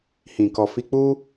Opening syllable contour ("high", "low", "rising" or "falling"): low